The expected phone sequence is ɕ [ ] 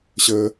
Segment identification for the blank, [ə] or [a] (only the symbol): ə